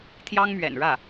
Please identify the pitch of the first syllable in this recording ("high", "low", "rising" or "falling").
high